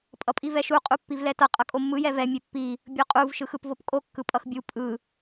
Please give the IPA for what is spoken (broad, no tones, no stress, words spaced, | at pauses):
pʼʌpʼivɛʃu qʼupːivlɛtʌ qʼʌkʼomːɯ jɛvɛ mʲepːi | bʲoqʼuv ʃɯxɯpvopkʼo kːɯpʼʌxbʲu pʼɯ